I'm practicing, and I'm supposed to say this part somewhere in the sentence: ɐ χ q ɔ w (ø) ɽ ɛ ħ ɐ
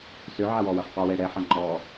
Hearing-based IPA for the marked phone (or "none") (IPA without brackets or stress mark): ɛ